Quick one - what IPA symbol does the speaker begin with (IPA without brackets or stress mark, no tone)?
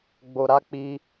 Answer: ɡ͡b